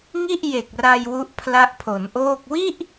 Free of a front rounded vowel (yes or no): yes